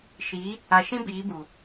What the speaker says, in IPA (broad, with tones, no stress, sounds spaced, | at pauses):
ʃ i˨˦ | a˨ ʃ ĩ˦ b iː˨˦ b u˨